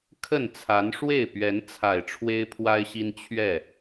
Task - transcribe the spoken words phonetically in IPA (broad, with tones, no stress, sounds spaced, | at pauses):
kʰ ə˥˨ n t͡sʰ a˨˦ n ʂ w e˥˨ ɪ̯ p ɥ ɛ˨˦ n t͡sʰ a˨˩ ɪ̯ ʈ͡ʂʰ w e˦ ɪ̯ pʰ w a˦ ɪ̯ ɕ i˦ n t͡ɕʰ ɥ ɛ˥˨